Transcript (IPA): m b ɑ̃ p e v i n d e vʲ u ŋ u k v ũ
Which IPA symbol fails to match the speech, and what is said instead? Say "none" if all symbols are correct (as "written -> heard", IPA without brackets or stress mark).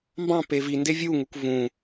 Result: none